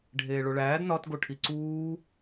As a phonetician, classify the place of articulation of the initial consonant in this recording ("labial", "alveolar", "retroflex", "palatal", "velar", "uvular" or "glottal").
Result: retroflex